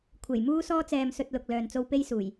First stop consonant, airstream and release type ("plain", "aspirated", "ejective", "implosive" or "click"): aspirated